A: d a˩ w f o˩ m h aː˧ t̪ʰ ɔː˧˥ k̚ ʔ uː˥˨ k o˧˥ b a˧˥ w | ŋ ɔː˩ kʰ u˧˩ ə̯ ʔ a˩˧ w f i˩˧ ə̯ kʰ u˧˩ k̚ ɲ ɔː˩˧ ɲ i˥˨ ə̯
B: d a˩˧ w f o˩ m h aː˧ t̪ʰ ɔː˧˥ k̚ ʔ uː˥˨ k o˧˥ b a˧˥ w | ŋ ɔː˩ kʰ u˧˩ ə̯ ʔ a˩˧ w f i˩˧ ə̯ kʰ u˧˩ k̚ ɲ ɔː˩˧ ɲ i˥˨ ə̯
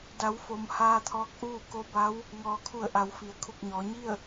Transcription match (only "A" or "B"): B